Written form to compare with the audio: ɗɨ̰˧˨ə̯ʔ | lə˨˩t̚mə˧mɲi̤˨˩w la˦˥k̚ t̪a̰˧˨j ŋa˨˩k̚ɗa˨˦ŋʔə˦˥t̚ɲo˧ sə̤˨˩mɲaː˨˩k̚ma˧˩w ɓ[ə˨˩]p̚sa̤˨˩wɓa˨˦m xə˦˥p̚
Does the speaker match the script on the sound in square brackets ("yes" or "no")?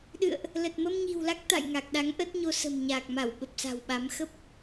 yes